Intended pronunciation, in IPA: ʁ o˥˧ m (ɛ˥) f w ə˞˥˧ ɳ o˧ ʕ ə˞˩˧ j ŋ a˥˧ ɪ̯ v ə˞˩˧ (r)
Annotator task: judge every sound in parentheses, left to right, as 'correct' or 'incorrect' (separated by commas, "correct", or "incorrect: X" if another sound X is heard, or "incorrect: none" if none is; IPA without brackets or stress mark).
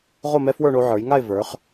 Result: correct, incorrect: χ